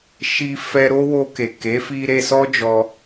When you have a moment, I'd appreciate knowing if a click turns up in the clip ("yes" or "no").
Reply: no